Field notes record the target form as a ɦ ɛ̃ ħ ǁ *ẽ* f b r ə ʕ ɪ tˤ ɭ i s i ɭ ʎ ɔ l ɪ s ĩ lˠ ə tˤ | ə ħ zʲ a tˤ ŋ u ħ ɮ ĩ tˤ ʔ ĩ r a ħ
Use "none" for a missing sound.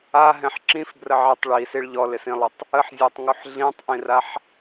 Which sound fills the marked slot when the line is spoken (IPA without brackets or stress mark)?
ĩ